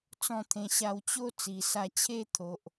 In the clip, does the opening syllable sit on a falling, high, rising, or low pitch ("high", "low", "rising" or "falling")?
falling